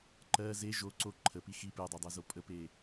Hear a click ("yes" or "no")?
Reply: yes